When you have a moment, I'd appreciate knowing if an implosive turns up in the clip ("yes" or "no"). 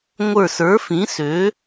no